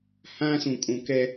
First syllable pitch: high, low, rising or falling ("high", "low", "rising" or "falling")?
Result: high